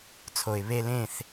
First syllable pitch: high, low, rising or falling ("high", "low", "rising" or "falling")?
low